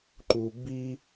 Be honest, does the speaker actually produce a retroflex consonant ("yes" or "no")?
no